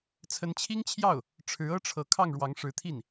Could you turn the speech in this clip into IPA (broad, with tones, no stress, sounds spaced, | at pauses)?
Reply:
t͡sʰ ə˧˥ n t͡ɕʰ i˥ ŋ t͡ɕʰ j ɑ˥˩ ʊ̯ | ʈ͡ʂʰ ɻ̩˧˥ ɤ˥ ʈ͡ʂʰ ɤ˧˥ kʰ ɑ˥˩ ŋ ɻ w ɑ˧˥ ŋ ʂ ɻ̩˧˥ t̪ʰ i˥˩ n